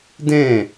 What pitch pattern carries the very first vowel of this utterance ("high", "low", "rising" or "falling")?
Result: falling